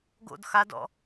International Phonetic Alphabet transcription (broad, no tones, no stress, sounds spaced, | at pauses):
ɡ o̰ d x a d ɔ̰